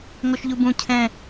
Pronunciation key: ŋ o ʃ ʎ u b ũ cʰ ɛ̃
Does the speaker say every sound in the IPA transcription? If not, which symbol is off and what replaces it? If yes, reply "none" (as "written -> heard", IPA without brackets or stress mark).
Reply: none